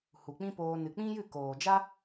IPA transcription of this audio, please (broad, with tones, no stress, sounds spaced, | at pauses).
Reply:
h u˨ k͡p ĩ˦ p oː˧ n ɨ˨ k͡p ĩ˦ j ɨ˦˨ k oː˨ d͡ʒ a˦